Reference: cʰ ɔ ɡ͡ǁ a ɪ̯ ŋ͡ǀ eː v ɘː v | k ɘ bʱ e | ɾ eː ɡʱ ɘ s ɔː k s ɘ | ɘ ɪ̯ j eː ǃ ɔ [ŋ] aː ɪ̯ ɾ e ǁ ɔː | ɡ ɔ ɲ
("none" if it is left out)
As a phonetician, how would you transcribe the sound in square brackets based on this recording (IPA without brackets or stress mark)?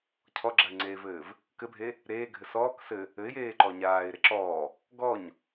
ɲ